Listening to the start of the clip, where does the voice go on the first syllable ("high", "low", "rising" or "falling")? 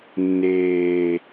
high